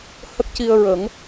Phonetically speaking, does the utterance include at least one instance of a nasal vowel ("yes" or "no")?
no